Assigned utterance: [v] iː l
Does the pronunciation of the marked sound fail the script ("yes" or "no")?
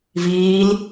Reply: no